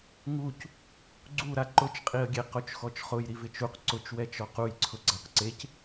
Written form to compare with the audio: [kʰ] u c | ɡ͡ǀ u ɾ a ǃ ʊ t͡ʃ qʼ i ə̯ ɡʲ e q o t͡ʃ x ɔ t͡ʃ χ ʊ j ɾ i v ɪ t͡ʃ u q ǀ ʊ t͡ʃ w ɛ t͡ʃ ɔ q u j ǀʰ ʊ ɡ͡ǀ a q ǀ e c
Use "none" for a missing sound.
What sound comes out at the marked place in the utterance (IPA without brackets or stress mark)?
ŋ